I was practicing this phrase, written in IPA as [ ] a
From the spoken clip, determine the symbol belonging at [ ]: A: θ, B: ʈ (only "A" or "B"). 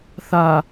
A